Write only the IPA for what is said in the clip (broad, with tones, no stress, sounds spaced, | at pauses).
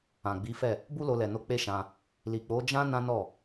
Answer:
ã˨ ɡ͡b i˨˦ f ɛ˦˨ | b u˦ l o˧ l ɛ˨ n o˧ k͡p e˦ ʃ ã˧ | l i˨ k͡p o˨˦ d͡ʒ ã˦ n ã˦ n ɔ˦˨